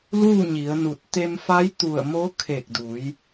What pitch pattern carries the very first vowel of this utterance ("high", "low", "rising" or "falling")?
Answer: falling